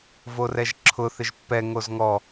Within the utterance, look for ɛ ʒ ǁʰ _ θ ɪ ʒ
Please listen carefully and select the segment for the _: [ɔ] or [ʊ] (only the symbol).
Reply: ʊ